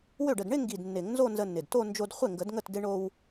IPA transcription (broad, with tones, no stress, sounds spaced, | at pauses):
w ø˥˩ ɖ ə˥˩ d ɳ ɪ˥˧ ŋ ɡ i˨˩ d nː ɪ˨˩˦ ŋ n z o˥˧ n z ə˧ nː ɪ˨˩ d t o˥˧ n d͡ʒ o˧ d χʷ ɪ˥˩ ŋ ɡ ə˨˩˦ d ŋ ə˥˩ t d ɪ˧ ɳ o˧ w